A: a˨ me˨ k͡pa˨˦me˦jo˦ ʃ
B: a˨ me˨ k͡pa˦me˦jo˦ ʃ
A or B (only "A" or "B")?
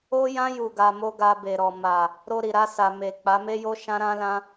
A